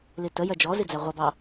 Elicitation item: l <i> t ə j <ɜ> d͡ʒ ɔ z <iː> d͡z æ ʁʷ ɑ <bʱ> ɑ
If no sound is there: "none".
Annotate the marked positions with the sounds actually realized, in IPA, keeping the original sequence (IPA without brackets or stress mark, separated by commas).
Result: i, ɜ, i, b